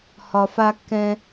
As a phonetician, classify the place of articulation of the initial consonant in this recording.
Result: glottal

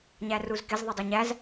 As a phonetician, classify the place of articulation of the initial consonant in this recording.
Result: palatal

